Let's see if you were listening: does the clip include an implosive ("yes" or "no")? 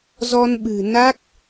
yes